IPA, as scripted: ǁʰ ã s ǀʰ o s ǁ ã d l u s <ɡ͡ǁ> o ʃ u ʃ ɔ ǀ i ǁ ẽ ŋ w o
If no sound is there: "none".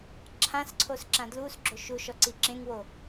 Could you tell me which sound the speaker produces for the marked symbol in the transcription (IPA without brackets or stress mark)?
ɡ͡ǁ